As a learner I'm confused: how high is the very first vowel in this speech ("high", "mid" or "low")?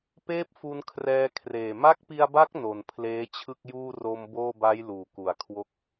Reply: mid